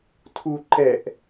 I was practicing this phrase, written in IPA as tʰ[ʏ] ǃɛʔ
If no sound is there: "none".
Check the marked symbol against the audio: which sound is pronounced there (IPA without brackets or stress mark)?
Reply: u